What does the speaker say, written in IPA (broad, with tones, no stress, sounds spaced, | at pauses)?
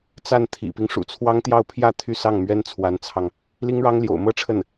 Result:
t͡s a˥˩ n t̪ʰ ḭ˨˩ p i˦ ŋ ʂ ṵ˨˩ t͡sʰ w ɑ˥ ŋ t̪ j ɑ˥˧ ʊ̯ pʰ j ä˥˧ t̪ʰ y˥˧ s ɑ˥˩ ŋ m ɥ ɛ˥ n t͡sʰ w a˧˥ n t͡sʰ ɑ˧ ŋ | l i˥ ŋ ɻ ɑ˥ ŋ l j o̰˨˩ ʊ̯ m ɤ˥ ʈ͡ʂʰ ə˥˩ n